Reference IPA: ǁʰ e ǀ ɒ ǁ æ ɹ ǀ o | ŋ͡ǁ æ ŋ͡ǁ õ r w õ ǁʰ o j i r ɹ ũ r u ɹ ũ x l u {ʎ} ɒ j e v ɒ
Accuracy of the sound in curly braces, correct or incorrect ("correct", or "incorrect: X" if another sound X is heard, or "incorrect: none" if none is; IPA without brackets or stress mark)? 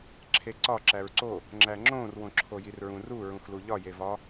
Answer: correct